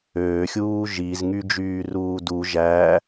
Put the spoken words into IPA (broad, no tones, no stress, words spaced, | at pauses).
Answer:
øːxʲuː ʒiz ŋyd͡ʒyːruːdu ʒæ